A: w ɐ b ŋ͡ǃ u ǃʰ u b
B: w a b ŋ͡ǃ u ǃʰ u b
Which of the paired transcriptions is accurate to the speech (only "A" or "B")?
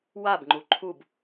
B